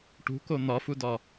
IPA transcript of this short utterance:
ʈ ṳ k o n̪ ɒ f u d ɒ

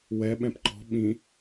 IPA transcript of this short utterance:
w ɛ ɓ ɛ̃ p ǃ ɔ̤ ɓ ĩ

